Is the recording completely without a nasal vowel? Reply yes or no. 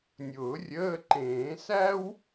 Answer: no